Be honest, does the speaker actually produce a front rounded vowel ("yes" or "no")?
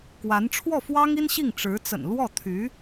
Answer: yes